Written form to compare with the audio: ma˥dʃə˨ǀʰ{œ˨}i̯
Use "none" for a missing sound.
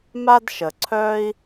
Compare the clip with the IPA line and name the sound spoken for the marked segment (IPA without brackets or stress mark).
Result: œ˥